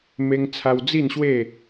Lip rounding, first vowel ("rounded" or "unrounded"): unrounded